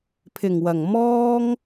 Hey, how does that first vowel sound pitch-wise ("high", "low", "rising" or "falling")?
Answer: low